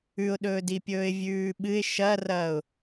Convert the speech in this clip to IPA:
ʉʊ̯ɗɵːdi pʲɵːɪ̯vʲʉːɓɨɪ̯ ʃɐrɐːʊ̯

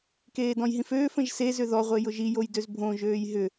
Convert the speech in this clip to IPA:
keːdɔ̃jɦĩføːf ə̃ʒsez ʏðɔ ʁʷejʊʒi jojdøzbʱõ ʒøːjɦʏ

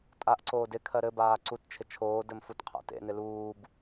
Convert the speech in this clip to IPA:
tʼaʔǀoːd ɪkʰɜ ɾɘbaː ǀutt͡ʃʰɪ t͡ʃʰoːdɘm futqʰa̰tḛnɪ luːb

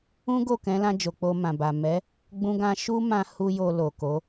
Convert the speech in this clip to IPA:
ũ˦ɡo˦˨kɛ̃˨˦lã˧ d͡ʒo˨k͡po˧mã˨ba˨ mɛ˨˦ | ɡ͡bũ˧ɡã˧ʃu˦mã˧ hu˦jo˧ lo˨ko˨˦

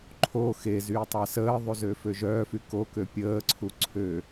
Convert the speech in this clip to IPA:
ǃʰo xezyː tˤasəːðˤu zøføʒœːfy kokø pʲəːǀʰu ǀʰø

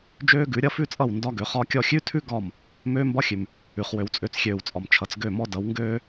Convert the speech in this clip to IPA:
d͡ʒøː˦ɡʉ˨˦ ɾʲʌ˦fʉ˦t͡sʼʌ˦˨w ndɒ˦ɡø˨˦χɒ˦kʲɔ˦ xʲʉ˦tʰʉ˦ ɡɒ˦˨m | møː˦mbɒ˦ xʲʉ˨m | ʉ˨χ wø˨wt͡sʼø˨˦t͡sxʲøː˨wt͡sʼɒ˨m t͡ʃʰʌ˨t͡sɡø˦˨mɔ˦dʌ˨˦w ŋɡøː˦

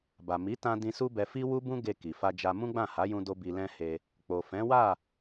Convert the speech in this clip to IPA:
ba˨mi˨˦tã˧ dĩ˧su˦bɛ˧ fi˦wu˦bũ˦ ɡe˧ ki˨ fa˧d͡ʒa˧ mũ˦ɡ͡bã˦˨ha˨˦jũ˧ do˦bi˧lɛ̃˦he˧ | k͡po˨fɛ̃˨˦wa˦˨

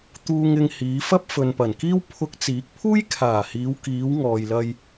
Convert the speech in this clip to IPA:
t̪uː˧ŋɪ˧ŋ hiː˨˧fɐ˥p̚ fɵ˨npɐ˨˩nkiː˥w pʰʊ˧k̚t͡siː˨˥k̚pʰuː˥jkʰaː˨˩ hiː˨˧wkiː˨˧wŋɔː˨jlɐ˧j

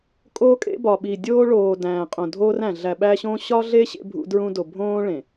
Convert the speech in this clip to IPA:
kʼoː˦kʼḛ˦bɒ˨ɓi˨ dʲoː˦ɭoː˨ dæ̃ː˨qʼõ˨dʱoː˦ræ̃˨ ɮæ˨ɓæ˦ɕõː˦ ɕɒ˦ɮe˦ ɕḛ˦bʱṵ˦dɹũ˦do˨ bʱõː˦ ɭẽ˨

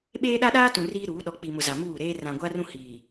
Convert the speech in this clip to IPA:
ɓeː˦ɗa˦ ɗaː˦tũ˨ riː˦ɾuː˨˦ ɗɔ˨k͡pi˨mʊ˨ za˨muː˦˨ɾeː˦ rã˨ɡʷa˦rũ˦ hiː˨

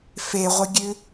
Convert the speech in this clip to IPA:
feʁʷəɡʲʉ

